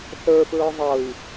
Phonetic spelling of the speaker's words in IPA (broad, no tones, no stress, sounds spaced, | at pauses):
θ ə˞ f ɹ ə˞ ðˤ ɤ i̯